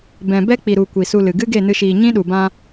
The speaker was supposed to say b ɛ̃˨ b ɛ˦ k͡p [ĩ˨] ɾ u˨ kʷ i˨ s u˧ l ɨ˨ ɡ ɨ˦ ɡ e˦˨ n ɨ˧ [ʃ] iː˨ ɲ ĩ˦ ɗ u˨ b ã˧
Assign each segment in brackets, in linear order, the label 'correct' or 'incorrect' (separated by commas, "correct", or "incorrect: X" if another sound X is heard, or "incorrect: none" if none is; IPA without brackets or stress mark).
incorrect: i˨, correct